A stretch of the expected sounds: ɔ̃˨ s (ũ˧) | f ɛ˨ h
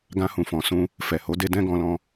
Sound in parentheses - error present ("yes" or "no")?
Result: no